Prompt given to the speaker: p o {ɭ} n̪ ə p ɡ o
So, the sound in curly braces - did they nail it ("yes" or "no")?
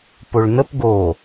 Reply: yes